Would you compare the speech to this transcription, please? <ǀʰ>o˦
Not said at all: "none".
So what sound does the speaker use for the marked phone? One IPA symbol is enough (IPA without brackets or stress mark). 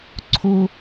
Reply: ǀʰ